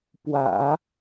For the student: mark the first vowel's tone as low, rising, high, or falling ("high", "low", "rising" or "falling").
low